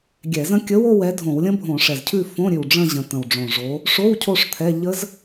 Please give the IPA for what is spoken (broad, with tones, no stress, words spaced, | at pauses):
ɡʲɛ˧˩˧zə̃˦˥ kʲə˨˥wo˦˨w ɛ˨˥dʱõ˧˩˧wlʲə̃˦˥bʱõ˧˩˧ ʂɛ˨˩zcʰʉ˦˨ fõ˧˥˧ɾʲʉ˨˩wɖ͡ʐə̃˦˨ ʑə̃˨˩t̪ə̃˨˩wɖ͡ʐõ˨˩ʐo˨˥ | ʂo˧˥˧w cʰo˦˨ʂ t̪ʰɛ˧˥˧ ʎə˦˥z